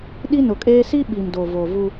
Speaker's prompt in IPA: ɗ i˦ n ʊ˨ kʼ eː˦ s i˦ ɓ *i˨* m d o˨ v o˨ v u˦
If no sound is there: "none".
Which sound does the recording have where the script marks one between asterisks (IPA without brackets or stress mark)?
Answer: i˨